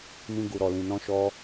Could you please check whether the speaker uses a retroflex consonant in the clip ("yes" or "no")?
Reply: no